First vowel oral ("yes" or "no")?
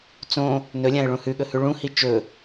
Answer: no